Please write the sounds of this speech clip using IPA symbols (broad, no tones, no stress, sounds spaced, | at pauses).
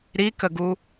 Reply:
ɾ i k ə ɡ u